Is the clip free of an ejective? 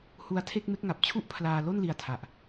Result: yes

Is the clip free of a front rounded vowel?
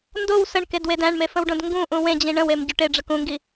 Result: yes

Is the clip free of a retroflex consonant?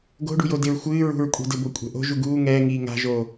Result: no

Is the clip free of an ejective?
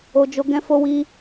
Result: yes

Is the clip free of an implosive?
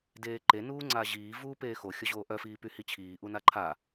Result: yes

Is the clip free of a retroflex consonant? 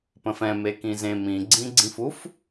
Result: yes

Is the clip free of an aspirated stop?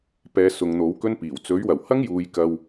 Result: yes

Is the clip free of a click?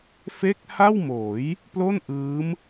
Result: yes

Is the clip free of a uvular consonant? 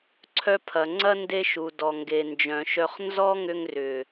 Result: no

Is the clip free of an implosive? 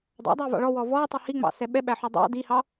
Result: no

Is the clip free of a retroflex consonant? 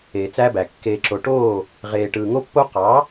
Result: no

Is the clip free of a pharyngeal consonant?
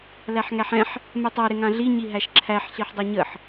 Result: no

